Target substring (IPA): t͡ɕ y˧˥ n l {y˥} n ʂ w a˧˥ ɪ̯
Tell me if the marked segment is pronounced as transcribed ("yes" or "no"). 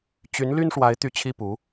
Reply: yes